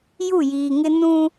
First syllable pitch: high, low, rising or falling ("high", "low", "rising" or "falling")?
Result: falling